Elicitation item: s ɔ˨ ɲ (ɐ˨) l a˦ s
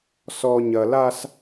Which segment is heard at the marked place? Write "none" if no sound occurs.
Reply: ɐ˨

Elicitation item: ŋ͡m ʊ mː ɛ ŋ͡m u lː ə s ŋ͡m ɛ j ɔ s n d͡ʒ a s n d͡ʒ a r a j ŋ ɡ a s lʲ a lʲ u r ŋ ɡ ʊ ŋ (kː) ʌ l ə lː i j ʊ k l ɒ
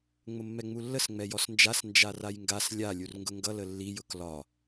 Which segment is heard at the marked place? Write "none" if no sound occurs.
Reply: ɡ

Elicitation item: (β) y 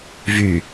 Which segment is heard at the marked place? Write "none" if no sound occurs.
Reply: v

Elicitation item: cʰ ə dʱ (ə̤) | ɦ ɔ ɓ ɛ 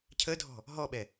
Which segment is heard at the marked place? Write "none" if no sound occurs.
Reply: ɔ̤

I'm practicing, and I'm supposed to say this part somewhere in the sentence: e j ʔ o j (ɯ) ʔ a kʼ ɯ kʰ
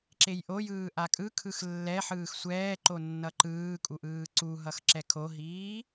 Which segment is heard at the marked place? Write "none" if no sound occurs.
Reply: ɯː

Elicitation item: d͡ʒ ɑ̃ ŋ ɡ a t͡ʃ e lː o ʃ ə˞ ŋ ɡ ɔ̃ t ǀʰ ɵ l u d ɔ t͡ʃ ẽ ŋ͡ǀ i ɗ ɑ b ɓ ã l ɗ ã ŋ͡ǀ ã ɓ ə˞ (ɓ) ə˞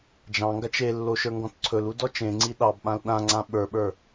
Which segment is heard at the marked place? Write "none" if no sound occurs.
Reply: ɓ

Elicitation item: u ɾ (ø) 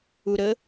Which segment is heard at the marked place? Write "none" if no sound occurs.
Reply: ə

